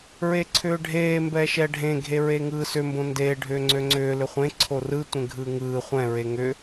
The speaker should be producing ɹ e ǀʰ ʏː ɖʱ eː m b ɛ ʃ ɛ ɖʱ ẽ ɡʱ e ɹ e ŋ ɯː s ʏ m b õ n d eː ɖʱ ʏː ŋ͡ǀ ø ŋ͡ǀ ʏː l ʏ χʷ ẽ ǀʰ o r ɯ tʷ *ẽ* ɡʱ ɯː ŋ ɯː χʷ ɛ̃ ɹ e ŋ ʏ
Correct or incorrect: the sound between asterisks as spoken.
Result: correct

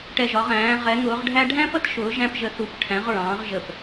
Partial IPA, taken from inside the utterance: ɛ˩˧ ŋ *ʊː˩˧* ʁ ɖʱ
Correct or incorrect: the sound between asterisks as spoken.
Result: correct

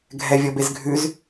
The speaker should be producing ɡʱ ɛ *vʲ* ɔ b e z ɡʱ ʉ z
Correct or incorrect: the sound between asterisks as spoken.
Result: correct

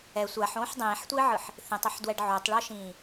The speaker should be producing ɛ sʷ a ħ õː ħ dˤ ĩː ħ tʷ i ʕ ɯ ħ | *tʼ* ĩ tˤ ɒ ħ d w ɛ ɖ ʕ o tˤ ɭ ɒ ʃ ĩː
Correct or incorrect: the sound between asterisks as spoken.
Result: incorrect: θ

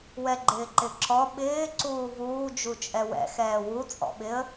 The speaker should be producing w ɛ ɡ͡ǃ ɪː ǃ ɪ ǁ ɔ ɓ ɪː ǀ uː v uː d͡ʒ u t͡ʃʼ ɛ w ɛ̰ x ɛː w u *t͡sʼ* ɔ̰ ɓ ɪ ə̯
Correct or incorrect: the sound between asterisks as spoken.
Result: correct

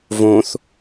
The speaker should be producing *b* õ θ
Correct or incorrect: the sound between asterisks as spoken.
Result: incorrect: v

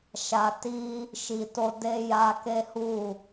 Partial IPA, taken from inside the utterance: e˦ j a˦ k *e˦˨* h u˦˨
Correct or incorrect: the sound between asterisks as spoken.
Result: incorrect: e˦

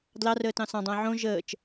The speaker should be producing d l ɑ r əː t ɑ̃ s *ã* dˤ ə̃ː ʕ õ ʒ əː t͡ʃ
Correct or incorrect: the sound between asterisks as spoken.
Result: incorrect: ɑ̃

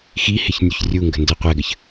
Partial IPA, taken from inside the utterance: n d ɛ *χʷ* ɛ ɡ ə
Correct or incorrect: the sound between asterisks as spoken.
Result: incorrect: qʷ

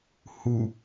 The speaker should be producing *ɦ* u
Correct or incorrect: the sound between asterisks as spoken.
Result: incorrect: h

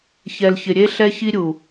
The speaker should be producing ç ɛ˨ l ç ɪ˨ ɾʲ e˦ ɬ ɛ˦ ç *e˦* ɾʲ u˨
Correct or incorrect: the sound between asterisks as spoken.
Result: incorrect: i˦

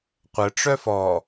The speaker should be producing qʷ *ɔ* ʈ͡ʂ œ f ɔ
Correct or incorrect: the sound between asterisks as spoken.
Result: incorrect: ə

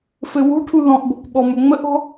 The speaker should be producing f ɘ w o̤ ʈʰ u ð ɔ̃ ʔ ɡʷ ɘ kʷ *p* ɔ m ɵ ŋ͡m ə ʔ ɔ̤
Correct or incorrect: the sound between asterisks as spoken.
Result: incorrect: ɓ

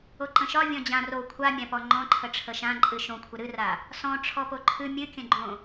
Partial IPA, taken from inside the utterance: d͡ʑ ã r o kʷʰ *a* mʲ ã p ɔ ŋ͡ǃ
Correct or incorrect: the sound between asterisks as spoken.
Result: correct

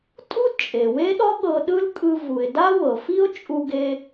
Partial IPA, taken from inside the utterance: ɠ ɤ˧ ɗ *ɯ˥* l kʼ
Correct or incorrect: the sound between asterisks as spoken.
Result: correct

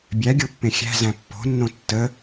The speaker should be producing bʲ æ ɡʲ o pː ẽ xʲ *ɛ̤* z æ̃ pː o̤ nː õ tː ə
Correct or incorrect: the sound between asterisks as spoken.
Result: incorrect: æ̤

